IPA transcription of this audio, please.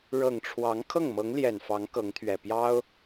ɻ ɤ˨˩ ŋ ʈ͡ʂʰ w ɑ˧˥ ŋ kʰ ɤ˥˩ ŋ m ɤ˧˥ ŋ l j ɛ˨˩ n f ɑ˧˥ ŋ k ɤ˧˥ ŋ t̪ʰ ɥ ɛ˨˩ p j ɑ˥ ʊ̯

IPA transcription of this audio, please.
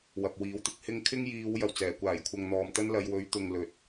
w ɐ˨ p̚ w iː˨˥ w t̪ ɪ˥ k̚ h ɪ˥ ŋ kʰ ɪ˥ ŋ j iː˨˧ w j ɐ˨˩ w t͡s ɛː˨˩ kʷ aː˨˩ j kʷʰ ɐ˨ ŋ n̪ ɔː˨ m t̪ ɐ˥ n l ɐ˨˧ j w ɵ˨˥ ɥ t̪ ʊ˨ ŋ l ɵ˨˥ t̚

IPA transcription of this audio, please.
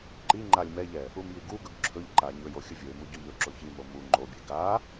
ǃ i ŋ͡ǃ a lʲ m ɛ ʎ ɛ | u m j i ɡ u ɡ ɵ ɡ ǁʰ ɵ ʎ ǃ a ɲ ɵ j o xʲ ə vʲ ɵ ɪ̯ m u ɟ o ʎ ɵ ǁ o ç i m o m u ŋ͡ǃ o bʲ ɛ ɡ a

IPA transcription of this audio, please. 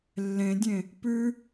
lː ẽ dʲ ẽ | p ʉ

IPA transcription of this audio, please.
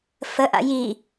f ə ʔ a̰ j i

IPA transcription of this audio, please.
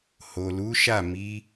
h o˨ l u˨˦ ʃ a˦˨ m i˨˦

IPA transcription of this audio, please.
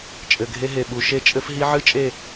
t͡ʃʼ ɘ˨ ɡʱ e˧ ɦ e˨ ɓ u˨ ʃ e˦˨ t͡ʃʼ ɘ˦ f ɦ i˦ ʕ ɨ˦ t͡ʃʼ e˦˨

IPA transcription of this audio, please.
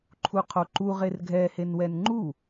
ǃʰ u qʰ o ǃ u ʁ e r ɡʱ ɛ h e n w ɛ n ŋ͡ǃ u

